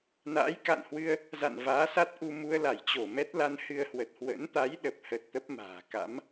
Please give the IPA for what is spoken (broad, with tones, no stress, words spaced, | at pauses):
na̰ː˧˥jka̰˧˨nhwɨ˧ə̯ | za̰˧˨nvaː˨˦sa˦˥t̚ʔu˧ mu˧ə̯la˧˩jt͡ɕo˧˩ mɛ˦˥t̚la˧nhɨ˧ə̯hwə˨˩t̚ hwə̰˧˥nt̪a˨˦jɗə˨˩p̚hə˨˩t̚ t̪ə˦˥p̚ma̤ː˨˩ka̰˧˥m